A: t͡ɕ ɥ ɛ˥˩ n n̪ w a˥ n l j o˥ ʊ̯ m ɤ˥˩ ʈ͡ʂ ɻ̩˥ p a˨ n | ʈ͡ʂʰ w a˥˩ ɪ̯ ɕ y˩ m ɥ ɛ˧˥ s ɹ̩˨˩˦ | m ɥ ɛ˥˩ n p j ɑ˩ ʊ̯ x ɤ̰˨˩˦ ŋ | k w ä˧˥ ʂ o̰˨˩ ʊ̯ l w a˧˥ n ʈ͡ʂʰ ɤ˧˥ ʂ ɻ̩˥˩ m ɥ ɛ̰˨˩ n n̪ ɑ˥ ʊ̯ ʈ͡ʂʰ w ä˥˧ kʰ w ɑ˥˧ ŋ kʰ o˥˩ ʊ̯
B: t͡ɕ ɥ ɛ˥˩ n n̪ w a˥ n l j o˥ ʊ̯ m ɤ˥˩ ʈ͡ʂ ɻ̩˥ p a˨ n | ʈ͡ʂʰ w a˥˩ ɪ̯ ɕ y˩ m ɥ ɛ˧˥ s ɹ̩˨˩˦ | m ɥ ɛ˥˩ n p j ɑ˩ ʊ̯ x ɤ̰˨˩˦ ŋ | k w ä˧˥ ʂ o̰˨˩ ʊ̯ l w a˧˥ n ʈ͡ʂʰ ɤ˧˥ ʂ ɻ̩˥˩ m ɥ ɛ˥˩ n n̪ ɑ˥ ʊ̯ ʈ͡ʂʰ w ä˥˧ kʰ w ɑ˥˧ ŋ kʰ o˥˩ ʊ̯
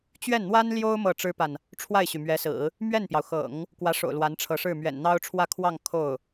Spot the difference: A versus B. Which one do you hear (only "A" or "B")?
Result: A